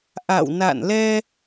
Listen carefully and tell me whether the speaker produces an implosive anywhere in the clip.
no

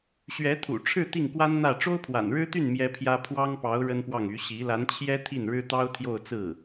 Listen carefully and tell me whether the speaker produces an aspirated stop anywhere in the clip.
yes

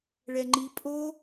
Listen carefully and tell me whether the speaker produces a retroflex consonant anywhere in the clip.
yes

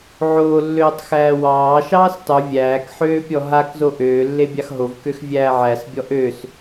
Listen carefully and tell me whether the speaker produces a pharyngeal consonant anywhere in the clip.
yes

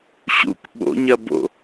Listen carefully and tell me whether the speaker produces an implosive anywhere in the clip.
yes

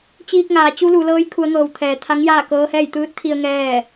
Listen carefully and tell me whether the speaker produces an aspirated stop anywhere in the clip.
yes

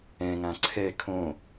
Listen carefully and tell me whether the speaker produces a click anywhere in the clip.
yes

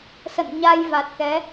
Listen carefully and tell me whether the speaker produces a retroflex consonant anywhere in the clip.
no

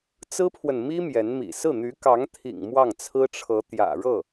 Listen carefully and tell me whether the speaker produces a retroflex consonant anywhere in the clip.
yes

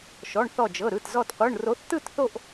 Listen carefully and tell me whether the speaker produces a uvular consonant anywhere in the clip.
yes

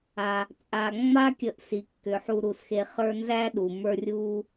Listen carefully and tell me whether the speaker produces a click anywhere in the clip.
no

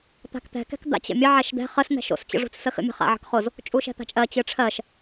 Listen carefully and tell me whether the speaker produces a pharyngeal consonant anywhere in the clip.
yes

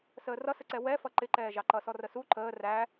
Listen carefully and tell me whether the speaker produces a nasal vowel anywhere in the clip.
no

